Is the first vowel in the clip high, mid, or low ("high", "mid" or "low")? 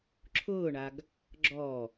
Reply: high